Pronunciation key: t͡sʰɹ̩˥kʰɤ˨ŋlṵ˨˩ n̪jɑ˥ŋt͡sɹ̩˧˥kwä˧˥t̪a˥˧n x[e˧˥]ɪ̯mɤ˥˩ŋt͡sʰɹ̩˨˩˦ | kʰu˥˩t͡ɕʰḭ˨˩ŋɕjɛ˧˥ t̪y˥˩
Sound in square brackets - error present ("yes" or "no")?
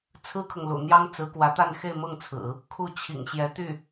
yes